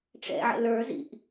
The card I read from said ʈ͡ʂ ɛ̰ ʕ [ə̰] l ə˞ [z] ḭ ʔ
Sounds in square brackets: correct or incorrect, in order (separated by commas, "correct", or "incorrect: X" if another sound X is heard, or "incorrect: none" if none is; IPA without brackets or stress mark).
correct, correct